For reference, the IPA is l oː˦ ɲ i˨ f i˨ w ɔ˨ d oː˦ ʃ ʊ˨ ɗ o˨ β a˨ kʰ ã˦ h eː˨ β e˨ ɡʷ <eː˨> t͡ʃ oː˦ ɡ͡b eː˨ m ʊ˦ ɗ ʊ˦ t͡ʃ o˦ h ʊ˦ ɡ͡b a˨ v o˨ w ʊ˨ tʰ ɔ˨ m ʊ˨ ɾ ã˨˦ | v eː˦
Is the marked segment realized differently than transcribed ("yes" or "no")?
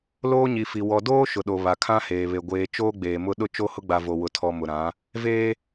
no